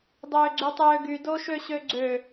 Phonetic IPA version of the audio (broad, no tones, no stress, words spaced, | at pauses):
dˤøːɡ͡ǀytˤøːɡy doʃøɕøɡ͡ǀø